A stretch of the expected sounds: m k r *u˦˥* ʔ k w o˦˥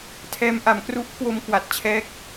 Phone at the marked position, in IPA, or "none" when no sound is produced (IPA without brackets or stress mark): u˦˥